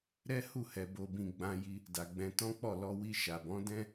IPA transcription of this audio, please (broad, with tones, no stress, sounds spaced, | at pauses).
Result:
ɾ ɛ˦ h u˦˨ h ɛ˨ b o˨ b ĩ˨ ɡ͡b ã˧ j i˧ | d a˨ ɡ͡b ɛ̃˧ t ɔ̃˦ k͡p ɔ˦˨ l ɔ˧ w i˧ ʃ a˨ b ɔ̃˨˦ d ɛ̃˦